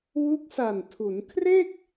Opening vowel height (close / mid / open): close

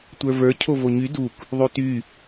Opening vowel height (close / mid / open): mid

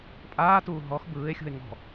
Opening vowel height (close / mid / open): open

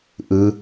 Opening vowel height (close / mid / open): close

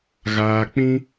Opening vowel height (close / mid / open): open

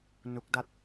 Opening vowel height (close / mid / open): close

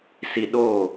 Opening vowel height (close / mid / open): close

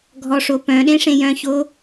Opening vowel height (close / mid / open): mid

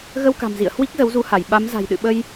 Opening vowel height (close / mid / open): mid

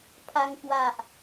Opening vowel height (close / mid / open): open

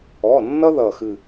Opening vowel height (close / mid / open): mid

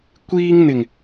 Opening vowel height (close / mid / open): close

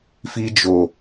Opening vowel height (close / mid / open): close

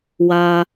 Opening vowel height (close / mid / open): open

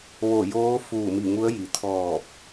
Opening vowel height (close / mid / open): mid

